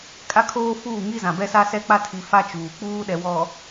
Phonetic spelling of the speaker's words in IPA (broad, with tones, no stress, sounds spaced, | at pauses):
kʼ a˦ kʰ oː˦ f uː˦˨ ŋ i˦ z ã˨ b ɛ˦ s a˦ s ɛ˦ k͡p a˦ tʰ i˨ f a˦ t͡ʃ uː˨ k͡p uː˦ ɗ ɛ˨ w ɔ˨